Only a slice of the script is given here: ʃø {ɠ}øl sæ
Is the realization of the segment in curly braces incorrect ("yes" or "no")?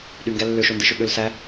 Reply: no